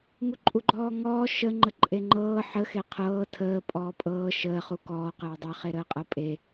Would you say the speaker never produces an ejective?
no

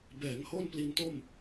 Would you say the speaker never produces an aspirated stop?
yes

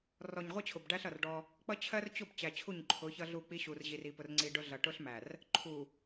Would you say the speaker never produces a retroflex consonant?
no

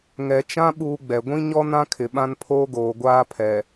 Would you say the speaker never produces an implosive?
no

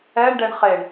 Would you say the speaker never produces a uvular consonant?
no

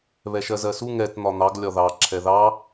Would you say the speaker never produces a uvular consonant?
yes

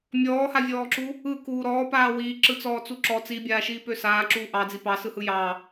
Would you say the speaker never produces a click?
no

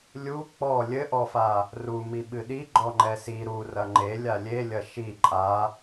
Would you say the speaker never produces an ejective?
no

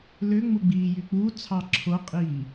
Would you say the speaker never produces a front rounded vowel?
no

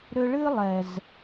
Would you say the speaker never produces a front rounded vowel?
no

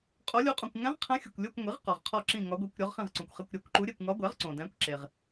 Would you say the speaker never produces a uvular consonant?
no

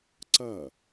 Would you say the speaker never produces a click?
no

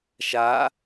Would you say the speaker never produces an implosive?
yes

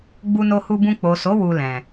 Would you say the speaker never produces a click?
yes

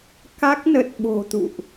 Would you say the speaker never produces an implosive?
no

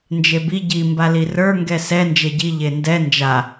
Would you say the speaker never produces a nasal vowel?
yes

